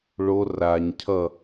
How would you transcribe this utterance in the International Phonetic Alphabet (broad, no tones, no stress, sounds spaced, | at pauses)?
ɭ o r a ɲ cʰ ʌ